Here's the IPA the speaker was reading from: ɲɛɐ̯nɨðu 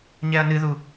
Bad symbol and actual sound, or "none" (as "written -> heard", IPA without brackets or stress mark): none